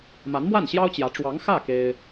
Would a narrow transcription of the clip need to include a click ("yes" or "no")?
no